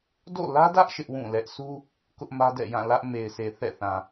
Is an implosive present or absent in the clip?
absent